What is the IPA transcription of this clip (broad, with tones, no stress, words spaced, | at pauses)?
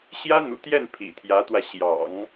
ɕjä˥n̪ṵ˨˩t̪jɛ˥˩n pʰḭ˨˩t̪ʰjä˧˥t̪wä˧ ɕjɑ̰˨˩˦ŋ